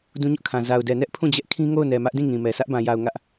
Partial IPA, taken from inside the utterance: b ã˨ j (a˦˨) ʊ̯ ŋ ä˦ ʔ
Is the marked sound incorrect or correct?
incorrect